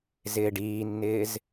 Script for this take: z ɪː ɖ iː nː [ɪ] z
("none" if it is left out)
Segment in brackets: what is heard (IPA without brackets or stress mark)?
ɪː